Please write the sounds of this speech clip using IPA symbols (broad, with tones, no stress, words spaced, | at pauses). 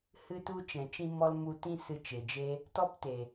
hɨ˧tu˧ t͡ʃɛ̃˨ t͡ʃĩ˧mɔ˧l mu˧tĩ˦ sɨ˧t͡ʃe˨d͡ʒe˦ | tɔ˦pte˨